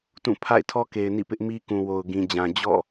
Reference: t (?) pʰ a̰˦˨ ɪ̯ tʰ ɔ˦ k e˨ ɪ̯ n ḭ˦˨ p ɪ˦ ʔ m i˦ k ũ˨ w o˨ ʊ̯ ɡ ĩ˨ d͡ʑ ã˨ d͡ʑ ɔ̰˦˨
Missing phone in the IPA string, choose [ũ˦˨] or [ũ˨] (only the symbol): ũ˦˨